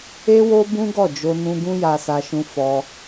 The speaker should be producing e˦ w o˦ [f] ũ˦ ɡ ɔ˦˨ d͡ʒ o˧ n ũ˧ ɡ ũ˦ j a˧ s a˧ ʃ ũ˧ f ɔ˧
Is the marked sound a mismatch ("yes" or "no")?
yes